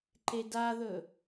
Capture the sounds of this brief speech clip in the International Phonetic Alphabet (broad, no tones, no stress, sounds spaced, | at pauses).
ǃ e d a ð ɵ